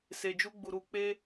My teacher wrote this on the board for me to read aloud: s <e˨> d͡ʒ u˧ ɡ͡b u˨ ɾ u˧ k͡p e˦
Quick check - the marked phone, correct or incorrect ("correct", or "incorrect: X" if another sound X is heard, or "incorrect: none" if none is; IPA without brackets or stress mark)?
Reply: correct